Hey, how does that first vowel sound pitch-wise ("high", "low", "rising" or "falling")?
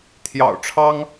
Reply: low